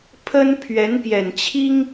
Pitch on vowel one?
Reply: high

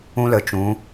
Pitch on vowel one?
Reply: high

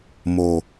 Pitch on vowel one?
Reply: low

